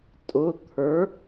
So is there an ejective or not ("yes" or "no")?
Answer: yes